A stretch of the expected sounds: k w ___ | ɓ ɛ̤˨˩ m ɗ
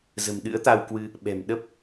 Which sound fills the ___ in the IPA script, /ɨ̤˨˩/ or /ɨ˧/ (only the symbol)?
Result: ɨ˧